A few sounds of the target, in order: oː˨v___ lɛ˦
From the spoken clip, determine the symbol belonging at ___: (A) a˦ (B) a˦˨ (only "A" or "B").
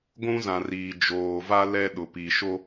A